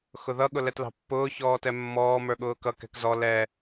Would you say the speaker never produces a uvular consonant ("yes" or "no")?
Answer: yes